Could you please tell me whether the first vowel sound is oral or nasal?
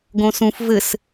nasal